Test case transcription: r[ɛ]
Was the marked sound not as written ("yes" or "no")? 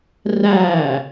yes